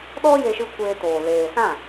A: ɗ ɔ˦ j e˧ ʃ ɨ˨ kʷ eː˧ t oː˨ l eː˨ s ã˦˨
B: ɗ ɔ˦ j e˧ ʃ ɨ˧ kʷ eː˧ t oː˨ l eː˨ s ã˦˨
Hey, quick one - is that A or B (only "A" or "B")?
B